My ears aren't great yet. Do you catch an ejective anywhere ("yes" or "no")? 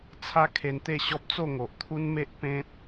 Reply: no